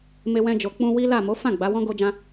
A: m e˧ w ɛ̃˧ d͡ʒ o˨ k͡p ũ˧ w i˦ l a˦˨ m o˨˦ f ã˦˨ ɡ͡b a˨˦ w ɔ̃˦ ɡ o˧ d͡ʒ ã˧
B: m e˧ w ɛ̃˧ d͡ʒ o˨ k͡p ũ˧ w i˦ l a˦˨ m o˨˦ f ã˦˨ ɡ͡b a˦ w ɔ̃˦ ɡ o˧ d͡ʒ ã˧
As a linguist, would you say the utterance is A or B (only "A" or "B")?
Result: A